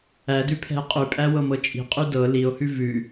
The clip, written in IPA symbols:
ædʉpʰɛ̤e̯ qʼʉpʼæwɤmɤ t͡ʃʼi̤qʼy dɤ lio̯hʉ vʉ

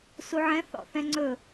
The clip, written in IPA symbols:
suʕɛ̃ θɔ̰θɛ̃ŋ͡ǀɵ

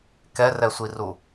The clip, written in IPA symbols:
kɛrɛsʷiru

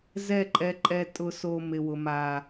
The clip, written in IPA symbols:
zɛ˦˨ǃʼɛ˧ǃʼɛ˧ tʼʊ˨so˨ mɪ˨wʊ˨ ma˨

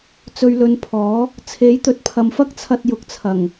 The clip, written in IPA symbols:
t͡sɵ˨ɥlɵ˨˧n pʰɔː˨˥ | t͡sʰe˨˥jt̪ɵ˨˥t̚pʰɐ˨mfɐ˥k̚ t͡sʰɐ˧t̚ jʊ˨˥k̚t͡sʰɐ˨˩ŋ

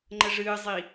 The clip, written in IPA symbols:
ŋ͡ǃəʐɨːzˤi

